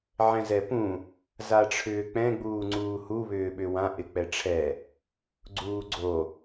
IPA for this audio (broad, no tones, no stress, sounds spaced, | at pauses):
ʕ ɛ̃ z ɛ p ũ | z a ʈ͡ʂʰ ʏː k͡p ɛ̃ ɡ͡b uː ŋ͡ǀ uː h u β ʏː ɓ ʏ w ã ʔ ɪ k͡p ɛ ʈ͡ʂʰ ɛ | ɡ͡ǀ uː ɡ͡ǀ o